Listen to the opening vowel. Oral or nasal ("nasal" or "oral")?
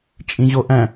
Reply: nasal